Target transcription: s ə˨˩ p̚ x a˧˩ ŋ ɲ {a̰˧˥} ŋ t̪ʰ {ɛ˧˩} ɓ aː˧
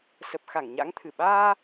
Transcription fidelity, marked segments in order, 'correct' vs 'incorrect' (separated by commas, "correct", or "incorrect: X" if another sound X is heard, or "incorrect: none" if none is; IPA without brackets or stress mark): correct, incorrect: ɨ˧˩